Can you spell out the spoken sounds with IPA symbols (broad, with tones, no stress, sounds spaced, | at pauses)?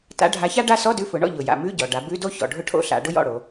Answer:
t a̰˨˥ ɖʱ a˨˥ ç a˥ ɖ a˥ s ɔ˧˥˧ d ʉ˨˥ f ʊ˩˧ ɳ ɔ̰˦˨ ʎ ʊ˩ j a̰˩˧ m ʉ˧˥˧ ɟ ɔ˩ ɖ a˩˧ b ʉ˧˥˧ d o˥ ç ɔ̰˩ ɖʱ ʊ˦˨ ʈʰ o̰˦˨ ɬ a̰˩˧ ɖ ʊ˥ j ɔ̰˦˨ ɽ o˩˧